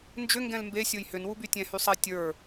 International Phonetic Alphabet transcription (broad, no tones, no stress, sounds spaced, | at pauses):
n d͡ʒ ʏ ŋ ɡ ɛ̃ l m b e sʲ o j h ʏ n w u b y tʲ ɛ̃ h y sˤ ɛ tʲ ə˞